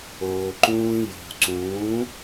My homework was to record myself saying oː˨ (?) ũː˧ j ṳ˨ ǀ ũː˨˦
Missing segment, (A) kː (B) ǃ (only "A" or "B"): B